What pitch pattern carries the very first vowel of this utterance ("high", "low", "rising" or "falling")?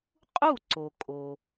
falling